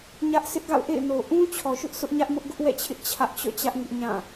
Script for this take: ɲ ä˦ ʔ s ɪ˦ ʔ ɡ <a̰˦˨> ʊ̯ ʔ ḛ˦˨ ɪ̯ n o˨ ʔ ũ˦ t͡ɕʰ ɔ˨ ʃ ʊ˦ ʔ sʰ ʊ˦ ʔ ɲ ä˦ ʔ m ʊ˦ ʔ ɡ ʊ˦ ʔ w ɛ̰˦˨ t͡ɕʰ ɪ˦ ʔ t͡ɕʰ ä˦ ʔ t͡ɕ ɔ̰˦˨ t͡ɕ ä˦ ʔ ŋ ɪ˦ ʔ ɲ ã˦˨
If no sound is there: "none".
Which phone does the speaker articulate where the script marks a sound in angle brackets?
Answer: a̰˦˨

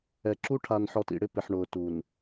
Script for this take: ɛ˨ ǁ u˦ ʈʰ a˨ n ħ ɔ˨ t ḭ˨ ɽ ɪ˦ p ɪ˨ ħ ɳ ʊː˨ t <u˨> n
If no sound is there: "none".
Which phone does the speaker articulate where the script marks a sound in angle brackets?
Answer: u˨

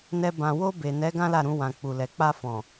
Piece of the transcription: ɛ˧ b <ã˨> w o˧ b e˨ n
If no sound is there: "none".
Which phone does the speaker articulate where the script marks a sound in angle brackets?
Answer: ã˨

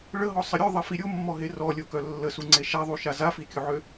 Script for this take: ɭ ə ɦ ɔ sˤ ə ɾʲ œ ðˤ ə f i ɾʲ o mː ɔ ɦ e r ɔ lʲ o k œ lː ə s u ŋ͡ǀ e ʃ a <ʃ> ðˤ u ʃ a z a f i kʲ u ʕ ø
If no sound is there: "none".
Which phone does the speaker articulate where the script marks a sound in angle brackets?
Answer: none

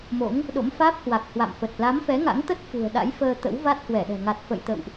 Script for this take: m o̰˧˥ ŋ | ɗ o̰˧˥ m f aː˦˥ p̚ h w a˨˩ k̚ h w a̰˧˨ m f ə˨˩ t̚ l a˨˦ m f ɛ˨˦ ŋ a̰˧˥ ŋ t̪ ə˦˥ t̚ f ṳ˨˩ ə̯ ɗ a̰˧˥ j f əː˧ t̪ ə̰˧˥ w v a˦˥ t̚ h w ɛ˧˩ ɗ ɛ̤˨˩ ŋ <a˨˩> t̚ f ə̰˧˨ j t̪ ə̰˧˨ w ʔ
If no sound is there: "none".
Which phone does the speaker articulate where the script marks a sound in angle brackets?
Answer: a˨˩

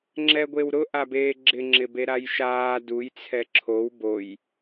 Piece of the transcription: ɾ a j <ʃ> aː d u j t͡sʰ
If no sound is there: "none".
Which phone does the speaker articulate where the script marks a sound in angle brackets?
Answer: ʃ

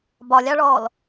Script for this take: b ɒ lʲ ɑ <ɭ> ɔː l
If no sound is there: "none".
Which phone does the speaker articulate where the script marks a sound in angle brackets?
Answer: ɭ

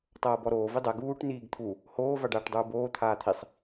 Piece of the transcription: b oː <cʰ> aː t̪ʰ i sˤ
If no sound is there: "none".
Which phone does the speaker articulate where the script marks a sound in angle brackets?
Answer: t̪ʰ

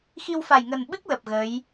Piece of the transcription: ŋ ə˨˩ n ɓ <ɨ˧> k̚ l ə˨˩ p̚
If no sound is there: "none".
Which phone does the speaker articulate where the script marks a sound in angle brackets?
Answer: ɨ˦˥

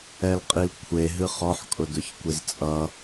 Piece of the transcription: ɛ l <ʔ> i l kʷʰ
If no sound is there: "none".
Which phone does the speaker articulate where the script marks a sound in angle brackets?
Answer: qʼ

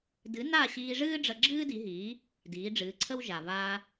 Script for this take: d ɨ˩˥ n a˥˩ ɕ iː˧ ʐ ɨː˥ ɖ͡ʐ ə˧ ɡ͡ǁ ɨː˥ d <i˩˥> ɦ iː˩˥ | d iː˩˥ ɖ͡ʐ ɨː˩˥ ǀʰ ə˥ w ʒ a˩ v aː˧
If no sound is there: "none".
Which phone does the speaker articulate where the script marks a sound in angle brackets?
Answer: i˩˥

